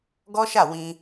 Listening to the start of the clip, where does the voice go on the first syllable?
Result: high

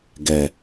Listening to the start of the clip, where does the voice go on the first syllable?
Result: low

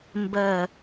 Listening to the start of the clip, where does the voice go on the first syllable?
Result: falling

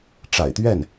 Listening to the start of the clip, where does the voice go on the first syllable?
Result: low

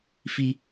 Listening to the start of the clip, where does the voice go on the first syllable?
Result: high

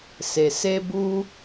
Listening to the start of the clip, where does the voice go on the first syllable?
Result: low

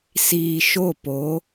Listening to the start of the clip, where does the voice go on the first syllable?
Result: low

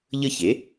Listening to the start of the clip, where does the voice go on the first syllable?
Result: falling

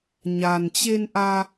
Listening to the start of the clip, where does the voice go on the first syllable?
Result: low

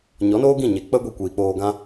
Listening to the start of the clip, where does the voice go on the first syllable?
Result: rising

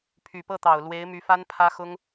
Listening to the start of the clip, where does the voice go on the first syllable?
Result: low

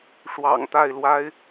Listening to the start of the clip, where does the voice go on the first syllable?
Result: low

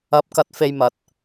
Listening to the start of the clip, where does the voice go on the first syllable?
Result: rising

